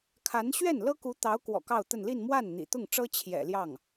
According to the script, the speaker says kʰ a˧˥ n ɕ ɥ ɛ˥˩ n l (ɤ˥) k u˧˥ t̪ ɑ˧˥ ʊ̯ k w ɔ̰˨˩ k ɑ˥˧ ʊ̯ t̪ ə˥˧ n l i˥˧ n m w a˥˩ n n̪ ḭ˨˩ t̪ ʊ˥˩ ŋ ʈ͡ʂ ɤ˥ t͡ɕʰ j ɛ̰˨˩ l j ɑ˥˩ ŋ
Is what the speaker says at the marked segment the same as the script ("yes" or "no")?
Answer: yes